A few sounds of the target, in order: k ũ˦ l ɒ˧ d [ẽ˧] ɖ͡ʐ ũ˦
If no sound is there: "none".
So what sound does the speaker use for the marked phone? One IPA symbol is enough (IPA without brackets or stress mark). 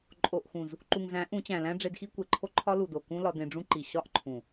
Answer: ẽ˧